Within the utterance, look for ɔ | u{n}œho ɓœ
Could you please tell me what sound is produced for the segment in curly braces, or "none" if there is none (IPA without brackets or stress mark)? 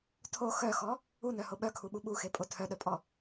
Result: n